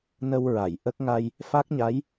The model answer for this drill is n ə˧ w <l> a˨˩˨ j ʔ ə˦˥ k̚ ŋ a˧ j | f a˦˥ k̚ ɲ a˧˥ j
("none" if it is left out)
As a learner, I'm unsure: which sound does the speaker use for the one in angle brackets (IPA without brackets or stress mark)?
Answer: ɹ